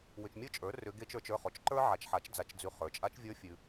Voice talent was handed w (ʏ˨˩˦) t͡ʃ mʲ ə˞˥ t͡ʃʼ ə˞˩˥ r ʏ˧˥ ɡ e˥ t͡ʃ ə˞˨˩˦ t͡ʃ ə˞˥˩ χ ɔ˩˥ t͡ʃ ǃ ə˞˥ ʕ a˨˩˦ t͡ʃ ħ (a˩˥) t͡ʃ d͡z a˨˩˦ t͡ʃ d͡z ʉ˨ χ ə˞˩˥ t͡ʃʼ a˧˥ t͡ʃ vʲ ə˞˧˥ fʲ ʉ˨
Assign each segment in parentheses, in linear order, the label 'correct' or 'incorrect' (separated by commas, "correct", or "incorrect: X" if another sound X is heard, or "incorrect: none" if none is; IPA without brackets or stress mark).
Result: incorrect: ʏ˨, correct